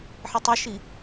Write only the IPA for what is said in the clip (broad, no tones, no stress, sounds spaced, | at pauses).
ħ ə tˤ ɐ ʃ i